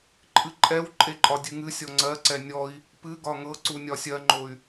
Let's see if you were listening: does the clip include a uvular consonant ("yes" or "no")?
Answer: no